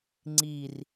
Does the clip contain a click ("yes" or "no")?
yes